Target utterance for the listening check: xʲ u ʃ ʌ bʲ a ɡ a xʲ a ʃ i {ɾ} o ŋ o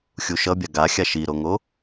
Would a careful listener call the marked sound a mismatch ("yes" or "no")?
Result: no